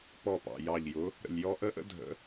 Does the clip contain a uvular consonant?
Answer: no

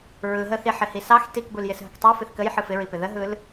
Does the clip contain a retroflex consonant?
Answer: no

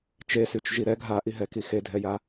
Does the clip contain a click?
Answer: no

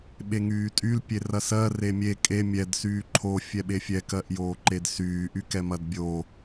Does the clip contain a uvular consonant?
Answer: no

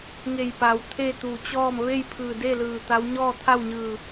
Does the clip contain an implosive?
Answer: no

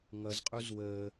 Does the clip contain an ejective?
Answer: yes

